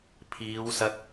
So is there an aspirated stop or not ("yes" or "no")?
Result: yes